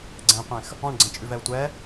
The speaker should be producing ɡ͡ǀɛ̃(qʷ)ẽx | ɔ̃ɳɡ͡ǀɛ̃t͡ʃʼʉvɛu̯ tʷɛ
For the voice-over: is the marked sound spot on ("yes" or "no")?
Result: yes